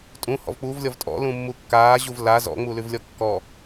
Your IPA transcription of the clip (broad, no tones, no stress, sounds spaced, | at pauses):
tʼ ũ h ɔ̰ v k͡p uː v lʲ ɔ v tʼ ɔ̰ l ũ mː u kː aː ʑ u v l a z ɔ̰ ŋ͡m u l ʉ v lʲ ɔ kː ɔ